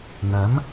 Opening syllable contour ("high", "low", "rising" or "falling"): rising